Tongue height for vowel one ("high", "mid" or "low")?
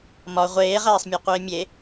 low